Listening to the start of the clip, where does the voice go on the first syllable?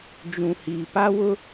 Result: low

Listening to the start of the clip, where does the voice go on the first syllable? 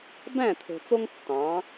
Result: falling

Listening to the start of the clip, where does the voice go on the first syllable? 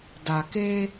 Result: low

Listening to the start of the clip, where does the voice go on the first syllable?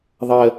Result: falling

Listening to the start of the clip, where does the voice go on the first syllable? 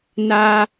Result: high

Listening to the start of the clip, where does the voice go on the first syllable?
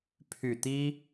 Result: low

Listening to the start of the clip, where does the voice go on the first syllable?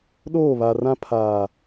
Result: falling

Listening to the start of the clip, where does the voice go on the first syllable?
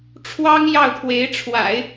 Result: high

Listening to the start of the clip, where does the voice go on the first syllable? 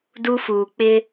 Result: high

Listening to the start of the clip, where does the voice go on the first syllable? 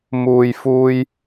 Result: low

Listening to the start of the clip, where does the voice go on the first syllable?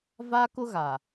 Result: high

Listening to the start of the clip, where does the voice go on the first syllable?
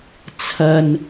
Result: low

